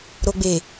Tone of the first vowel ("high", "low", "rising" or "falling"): low